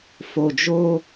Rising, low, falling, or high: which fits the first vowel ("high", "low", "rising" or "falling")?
low